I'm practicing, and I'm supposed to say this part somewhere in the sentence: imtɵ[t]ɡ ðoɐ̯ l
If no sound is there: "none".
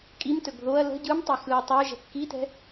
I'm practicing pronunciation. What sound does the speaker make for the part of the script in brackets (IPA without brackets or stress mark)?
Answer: none